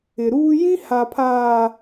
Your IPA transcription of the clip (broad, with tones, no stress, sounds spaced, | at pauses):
ɪ˨ ɾ uː˦ j ĩ˦ h a˨ pʰ aː˨